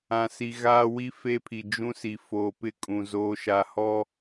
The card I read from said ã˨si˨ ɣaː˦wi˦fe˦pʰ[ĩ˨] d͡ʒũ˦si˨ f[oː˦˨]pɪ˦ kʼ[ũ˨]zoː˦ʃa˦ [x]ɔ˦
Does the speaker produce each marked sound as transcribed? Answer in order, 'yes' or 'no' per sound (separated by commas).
no, no, yes, no